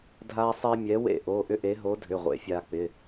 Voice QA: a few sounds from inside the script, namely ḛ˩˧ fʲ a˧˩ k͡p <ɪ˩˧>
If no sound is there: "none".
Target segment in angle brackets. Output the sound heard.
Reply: ɪ˩˧˩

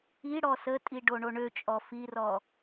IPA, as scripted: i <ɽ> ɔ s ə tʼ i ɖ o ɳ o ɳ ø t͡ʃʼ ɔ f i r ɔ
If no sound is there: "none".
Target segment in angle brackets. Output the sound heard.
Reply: ɽ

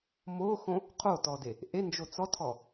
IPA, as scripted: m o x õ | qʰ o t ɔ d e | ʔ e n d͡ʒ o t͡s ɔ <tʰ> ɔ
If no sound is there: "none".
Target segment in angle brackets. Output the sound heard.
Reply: tʰ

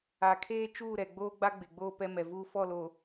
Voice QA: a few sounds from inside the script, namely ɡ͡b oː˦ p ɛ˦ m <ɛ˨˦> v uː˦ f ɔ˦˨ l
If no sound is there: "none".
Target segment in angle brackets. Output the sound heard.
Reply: ɛ˨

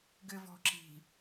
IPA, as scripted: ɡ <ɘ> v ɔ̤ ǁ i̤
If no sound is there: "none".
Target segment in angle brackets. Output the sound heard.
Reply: ɘ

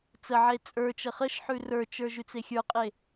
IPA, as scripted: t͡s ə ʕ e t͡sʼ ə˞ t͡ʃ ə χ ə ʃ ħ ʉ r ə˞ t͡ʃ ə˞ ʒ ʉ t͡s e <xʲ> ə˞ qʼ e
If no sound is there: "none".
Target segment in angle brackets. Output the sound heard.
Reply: xʲ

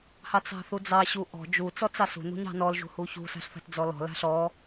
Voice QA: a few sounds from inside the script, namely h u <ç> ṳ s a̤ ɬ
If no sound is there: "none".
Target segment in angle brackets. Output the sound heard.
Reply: ç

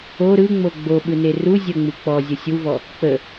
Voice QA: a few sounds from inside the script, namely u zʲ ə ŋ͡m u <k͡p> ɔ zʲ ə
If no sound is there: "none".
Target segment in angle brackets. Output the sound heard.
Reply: k͡p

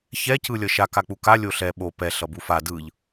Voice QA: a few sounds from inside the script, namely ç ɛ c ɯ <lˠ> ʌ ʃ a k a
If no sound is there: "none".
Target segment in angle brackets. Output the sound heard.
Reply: lʲ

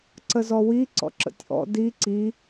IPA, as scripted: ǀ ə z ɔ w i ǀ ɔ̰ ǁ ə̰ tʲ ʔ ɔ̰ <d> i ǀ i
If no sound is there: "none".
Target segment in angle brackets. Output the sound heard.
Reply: d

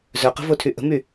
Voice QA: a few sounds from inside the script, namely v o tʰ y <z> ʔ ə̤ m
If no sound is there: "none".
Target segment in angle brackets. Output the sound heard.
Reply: none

